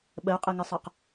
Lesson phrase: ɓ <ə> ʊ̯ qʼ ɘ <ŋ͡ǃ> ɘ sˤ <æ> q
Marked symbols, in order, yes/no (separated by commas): yes, no, no